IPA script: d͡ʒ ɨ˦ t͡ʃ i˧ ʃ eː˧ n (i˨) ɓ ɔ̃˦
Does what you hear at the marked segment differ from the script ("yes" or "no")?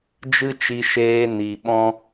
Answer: no